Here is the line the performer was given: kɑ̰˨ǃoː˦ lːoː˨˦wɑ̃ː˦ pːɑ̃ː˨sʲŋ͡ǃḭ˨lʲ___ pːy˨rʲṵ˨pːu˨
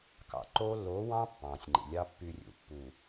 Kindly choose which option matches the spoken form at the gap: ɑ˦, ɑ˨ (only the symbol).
ɑ˦